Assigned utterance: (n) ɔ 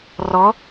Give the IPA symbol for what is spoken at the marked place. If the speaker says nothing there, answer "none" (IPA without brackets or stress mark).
r